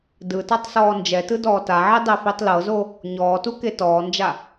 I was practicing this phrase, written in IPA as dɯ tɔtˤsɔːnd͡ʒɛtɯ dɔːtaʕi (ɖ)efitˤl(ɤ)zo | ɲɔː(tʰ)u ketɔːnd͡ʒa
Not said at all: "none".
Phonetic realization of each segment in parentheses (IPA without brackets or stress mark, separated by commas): dˤ, ɤ, t